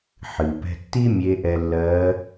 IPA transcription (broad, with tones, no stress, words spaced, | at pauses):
ħɨ˩pɛ̤˧tːi˥ mʲe˧˥ʔɛ˧lːɜː˧˥